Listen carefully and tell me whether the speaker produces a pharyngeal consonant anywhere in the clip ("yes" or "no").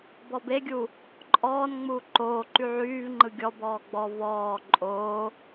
yes